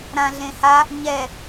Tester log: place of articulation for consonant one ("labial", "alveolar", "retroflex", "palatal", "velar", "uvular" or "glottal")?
alveolar